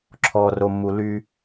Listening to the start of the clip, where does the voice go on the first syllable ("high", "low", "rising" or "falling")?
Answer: low